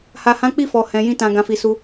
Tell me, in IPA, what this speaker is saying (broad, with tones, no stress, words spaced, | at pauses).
ha˨hã˨˦k͡pi˦˨ fɔ˨hɛ̃˨jĩ˧tã˨ ɡã˨fi˨su˧